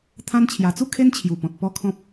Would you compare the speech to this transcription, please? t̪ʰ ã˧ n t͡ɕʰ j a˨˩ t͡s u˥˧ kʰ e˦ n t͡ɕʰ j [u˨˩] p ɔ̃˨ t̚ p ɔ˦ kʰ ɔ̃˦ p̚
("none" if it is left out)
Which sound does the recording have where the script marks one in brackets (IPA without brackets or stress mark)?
u˨˩